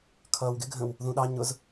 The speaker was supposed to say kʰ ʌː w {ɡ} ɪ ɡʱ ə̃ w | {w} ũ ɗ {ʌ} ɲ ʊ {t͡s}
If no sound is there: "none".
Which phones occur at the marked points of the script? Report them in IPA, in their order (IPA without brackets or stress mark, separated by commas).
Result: ɡ, ð, ɑ, z